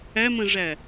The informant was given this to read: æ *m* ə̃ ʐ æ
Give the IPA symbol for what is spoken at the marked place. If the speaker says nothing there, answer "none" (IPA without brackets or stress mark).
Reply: m